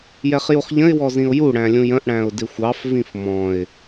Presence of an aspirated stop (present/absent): absent